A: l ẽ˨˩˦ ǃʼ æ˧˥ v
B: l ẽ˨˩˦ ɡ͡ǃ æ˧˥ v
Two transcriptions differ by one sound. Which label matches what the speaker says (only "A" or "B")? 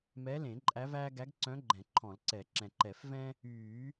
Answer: A